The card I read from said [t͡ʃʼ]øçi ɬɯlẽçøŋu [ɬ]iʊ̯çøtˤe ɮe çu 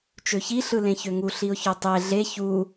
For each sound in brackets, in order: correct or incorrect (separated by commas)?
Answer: incorrect, correct